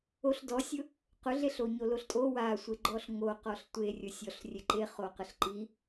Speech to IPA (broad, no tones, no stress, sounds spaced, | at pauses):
o ɬ d ɔ sʲ ʊ | q ʊ ɮ e ɬ o ɲ o l o ɬ tʼ o w a sʷ e ɡ͡ǃ ɔ ɬ ŋ o q ɔ ɬ tʷ e rʲ ʊ sʲ ɔ ɬ rʲ e ǃ e χ o q ə ɬ ǃ i